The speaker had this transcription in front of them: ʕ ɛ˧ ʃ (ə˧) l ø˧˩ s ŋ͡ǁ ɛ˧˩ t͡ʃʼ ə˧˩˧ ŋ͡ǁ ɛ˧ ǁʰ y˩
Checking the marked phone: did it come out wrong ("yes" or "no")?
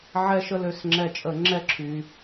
no